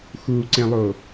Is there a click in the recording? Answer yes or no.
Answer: yes